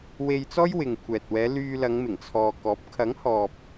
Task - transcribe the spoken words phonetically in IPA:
w e˧ j t͡s ɔː˥ j w ɪ˨ ŋ kʷʰ ɛː˨ t̚ w ɛː˨˧ l yː˧ l ɐ˨˧ ŋ m ɪ˨˩ ŋ t͡sʰ ɔː˨ k ɔː˨˥ p̚ kʰ ɐ˨˥ ŋ h ɔː˨ p̚

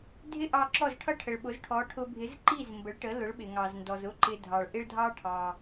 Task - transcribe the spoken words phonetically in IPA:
dʱ ɪ˥ ʔ ɑ˧ ǁ ɔ˥˩ z ʈʰ ʌ˥ ʈʰ ə˩ ɭ ɓ ʊ˩˥ z ʈʰ ɔ˩˥ ʈʰ ʊ˧ bʱ ɪ˩˥ z ǃ i˥˩ z m b ə˩˥ ɭ ʈ ə˩˥ l ʊ˩˥ ɭ ɓ ɪ˩ ŋ ɑ˩ z n d ɔ˩ z ʊ˥ ǃ ɪ˧ dʱ ɑ˩ ɭ ʔ ɪ˥ ɭ dʱ ɑ˥ ʈʰ ɑ˩

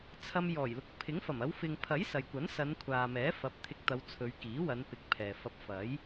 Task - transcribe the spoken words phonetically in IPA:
t͡sʰ ɐ˧ m j ɔː˨˩ j l ʊ˨˥ k̚ pʰ ɪ˨˥ ŋ f ɐ˨˩ m ɐ˨˧ w f ɪ˨ ŋ pʰ ɐ˨˥ j s ɐ˨ j kʷ ɐ˨˥ n s ɐ˨˧ n kʷʰ aː˨ m ɛː˨˥ f ɐ˨˥ p̚ t̪ʰ ɪ˧ k̚ t̪ ɐ˨˧ w t͡sʰ ɵ˨˧ ɥ k iː˨˥ w ɐ˨˧ n p ɪ˨˥ k̚ pʰ ɛː˨ f ɐ˧ p̚ f ɐ˨˥ j

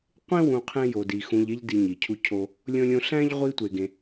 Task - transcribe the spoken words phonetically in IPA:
qʷ ẽ˥ w ũ˨ qʰ ẽ˦ j o˨ d i˨ x ũ˨ ʎ e˦ ʎ d i˨ ɲ i˩ cʰ u˦ cʰ o˦ | lʲ õ˦ lʲ õ˦ ɬ æ̃˥ ʎ ʁʷ i˦ tʷ e˨ ɡ ẽ˨

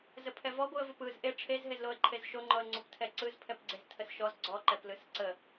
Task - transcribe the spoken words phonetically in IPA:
z ə pʰ ɛ v ɔ ɡʷ ɯ ə̯ v o p ɯ z ʔ e ʈ͡ʂʰ e z ɦ e z l o ə̯ ǃʰ e z ʃ o ŋ͡ǃ ɔ ə̯ ŋ͡ǀ o p tʰ ɛ ǀ ɯ z pʰ ɛ p ɡ͡ǀ e z tʰ ə s ʃ ɔ z ɡ͡ǀ ɔ ǃ ɛ p l ɯ s ǀ ə

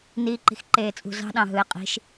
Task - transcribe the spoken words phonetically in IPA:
n iː ǃ i̤ x ǃ eː t͡sʼ ṳ z ɑ̤ ɗ ɑ̃ ɦ ɯ ɪ̯ qʼ i̤ ʃ

